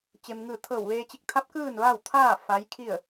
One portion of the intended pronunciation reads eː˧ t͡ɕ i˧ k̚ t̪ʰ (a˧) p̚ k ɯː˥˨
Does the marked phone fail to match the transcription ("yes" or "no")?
yes